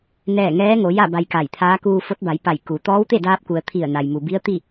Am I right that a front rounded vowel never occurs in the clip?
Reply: yes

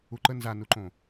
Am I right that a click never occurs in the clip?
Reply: no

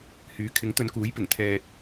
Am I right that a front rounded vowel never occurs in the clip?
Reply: no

